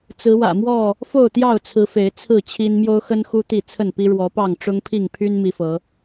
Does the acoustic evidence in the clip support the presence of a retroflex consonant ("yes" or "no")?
yes